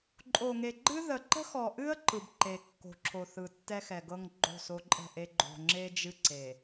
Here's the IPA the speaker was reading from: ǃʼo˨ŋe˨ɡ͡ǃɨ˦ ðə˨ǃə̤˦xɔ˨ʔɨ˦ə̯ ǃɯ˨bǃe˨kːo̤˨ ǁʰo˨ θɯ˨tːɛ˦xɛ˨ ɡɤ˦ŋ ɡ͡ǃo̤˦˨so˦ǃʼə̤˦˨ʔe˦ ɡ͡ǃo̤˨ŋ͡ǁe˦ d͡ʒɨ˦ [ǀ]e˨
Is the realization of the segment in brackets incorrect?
no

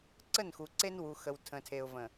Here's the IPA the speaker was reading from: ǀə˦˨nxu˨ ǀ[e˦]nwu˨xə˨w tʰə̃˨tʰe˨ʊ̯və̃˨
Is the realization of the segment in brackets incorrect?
no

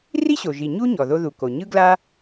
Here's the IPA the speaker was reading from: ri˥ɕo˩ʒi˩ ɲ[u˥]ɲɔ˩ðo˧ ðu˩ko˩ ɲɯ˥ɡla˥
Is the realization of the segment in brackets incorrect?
no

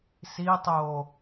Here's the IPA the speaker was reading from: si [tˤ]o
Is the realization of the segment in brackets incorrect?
no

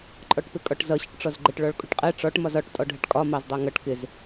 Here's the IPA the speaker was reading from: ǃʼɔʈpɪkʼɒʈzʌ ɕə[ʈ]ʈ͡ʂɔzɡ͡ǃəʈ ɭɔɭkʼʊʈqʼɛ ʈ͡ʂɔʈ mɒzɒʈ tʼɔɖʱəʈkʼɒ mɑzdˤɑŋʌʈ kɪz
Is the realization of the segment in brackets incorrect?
no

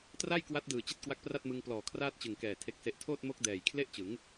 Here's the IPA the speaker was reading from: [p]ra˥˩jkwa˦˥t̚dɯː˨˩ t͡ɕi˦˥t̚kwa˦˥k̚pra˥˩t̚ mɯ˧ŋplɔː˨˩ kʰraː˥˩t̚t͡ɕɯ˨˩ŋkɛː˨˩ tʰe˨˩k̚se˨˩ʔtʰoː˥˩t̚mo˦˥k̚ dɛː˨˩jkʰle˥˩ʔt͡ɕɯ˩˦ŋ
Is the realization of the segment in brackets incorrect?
yes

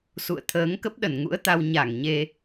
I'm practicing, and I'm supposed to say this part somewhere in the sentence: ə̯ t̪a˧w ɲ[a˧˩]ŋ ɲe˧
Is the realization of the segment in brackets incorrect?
no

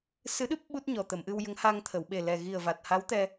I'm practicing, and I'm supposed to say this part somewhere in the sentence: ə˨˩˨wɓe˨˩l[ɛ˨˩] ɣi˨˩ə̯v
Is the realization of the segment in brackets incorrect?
no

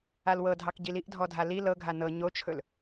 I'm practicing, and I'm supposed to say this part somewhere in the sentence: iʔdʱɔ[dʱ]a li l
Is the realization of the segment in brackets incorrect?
no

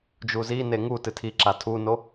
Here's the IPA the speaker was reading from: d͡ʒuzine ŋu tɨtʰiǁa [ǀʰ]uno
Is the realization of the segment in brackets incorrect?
yes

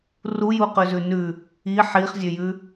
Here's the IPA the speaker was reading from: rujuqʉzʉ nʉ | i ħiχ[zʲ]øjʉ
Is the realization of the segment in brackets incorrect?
no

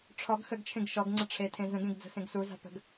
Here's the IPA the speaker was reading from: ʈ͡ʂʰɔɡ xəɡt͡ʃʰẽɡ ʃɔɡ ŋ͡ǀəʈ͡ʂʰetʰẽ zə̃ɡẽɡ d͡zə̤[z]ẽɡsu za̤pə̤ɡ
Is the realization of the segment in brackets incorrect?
yes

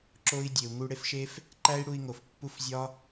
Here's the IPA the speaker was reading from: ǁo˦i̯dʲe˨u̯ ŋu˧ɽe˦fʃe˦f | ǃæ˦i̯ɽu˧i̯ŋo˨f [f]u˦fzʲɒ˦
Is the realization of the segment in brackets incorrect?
yes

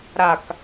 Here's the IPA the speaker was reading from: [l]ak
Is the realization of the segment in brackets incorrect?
yes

